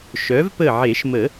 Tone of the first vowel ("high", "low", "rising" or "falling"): rising